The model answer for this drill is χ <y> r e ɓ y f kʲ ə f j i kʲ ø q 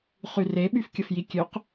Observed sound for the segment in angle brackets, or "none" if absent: y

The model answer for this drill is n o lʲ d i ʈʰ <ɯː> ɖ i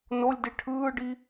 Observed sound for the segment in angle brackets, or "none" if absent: ɯː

